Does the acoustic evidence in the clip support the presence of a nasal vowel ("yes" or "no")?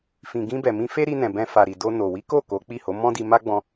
yes